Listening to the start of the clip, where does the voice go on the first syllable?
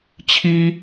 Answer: high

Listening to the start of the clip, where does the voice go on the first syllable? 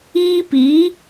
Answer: high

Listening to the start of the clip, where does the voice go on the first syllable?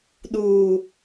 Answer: low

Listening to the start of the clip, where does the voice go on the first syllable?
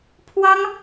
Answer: high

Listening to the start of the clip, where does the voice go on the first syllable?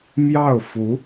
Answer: falling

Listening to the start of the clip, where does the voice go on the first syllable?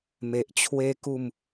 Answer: low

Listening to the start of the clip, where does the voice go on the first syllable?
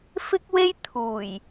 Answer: high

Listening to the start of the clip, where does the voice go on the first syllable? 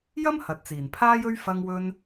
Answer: high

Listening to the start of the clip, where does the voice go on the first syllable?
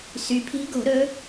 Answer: rising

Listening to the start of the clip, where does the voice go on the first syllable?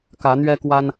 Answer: rising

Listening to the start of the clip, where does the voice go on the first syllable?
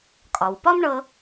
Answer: low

